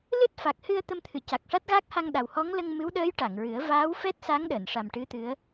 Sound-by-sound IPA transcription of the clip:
l ɨ˦˥ t̚ f a˨˩ k̚ h ɨ˧ ə̯ t̪ ə˧ m t̪ʰ ɨ˨˩˨ c a˨˩ k̚ ʂ a˦˥ t̚ ɣ a˦˥ k̚ h a˧ ŋ ɗ a˨˩ w h ɔ˧˥ ŋ l ə˧ ŋ m ɨ˧˥ w ɗ əː˧˥ j ʈ a˨˩˨ ŋ ɹ ɨ˨˩˦ ə̯ v aː˧˥ w f ɛ˦˥ t̚ s a˧˥ ŋ ɗ əː˨˩˨ n ʂ a˨˩ m ʈ ɨ˧˥ t̪ ɨ˧˥ ə̯

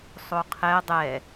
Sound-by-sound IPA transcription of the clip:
sˤ o qʰ ɛ dˤ ɛ

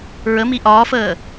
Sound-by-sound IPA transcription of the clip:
ɹ ə m i ʔ ɒː f əː

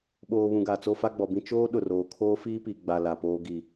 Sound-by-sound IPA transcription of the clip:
ɓ oː˨ β ũ˨ ɡ a˨ t͡s o˦ f a˦ ɡ͡b ɔ˨ b ĩ˦ t͡ʃ oː˦ ɗ ʊ˨ r oː˨ kʰ oː˦ f iː˦ p i˨ ɡ͡b a˨ l a˨ p oː˦ ɡ i˨

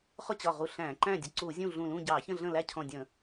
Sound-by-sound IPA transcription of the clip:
χ ʊ˥˨ t͡ɕ ɒ˧˩ ʁ u˧˩ ɬ æ̃˧˩˧ ǃ æ̃˥˨ dʲ ə˧˩ ǀ u˧˩˧ zʲ ũ˥˨ ɮ ũ˧˩ l ũ˥˨ ɟ ɑ˧˩˧ ç ə̃˥˨ ɮ ə̃˥˨ l æ˥˨ cʰ ɔ̃˧˩ dʲ ə̃˧˩˧

